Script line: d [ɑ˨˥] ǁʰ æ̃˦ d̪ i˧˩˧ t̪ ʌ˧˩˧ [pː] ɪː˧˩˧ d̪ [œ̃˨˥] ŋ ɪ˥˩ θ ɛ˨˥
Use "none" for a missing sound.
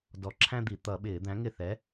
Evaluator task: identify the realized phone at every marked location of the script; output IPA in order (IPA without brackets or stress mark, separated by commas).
ɔ˨˥, ɓ, æ̃˨˥